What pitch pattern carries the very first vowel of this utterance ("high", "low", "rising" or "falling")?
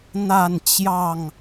falling